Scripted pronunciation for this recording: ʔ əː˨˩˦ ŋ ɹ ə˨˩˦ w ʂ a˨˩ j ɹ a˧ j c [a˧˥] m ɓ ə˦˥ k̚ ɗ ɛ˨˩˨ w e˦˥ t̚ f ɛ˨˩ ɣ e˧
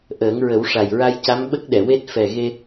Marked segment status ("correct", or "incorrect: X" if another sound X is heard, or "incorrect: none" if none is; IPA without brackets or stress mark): correct